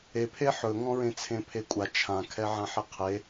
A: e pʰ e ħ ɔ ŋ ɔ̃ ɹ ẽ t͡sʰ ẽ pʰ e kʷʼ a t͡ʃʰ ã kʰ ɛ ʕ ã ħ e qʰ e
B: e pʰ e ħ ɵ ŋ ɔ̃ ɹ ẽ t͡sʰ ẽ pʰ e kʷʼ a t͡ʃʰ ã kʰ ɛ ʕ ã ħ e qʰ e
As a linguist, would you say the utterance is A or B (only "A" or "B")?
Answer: B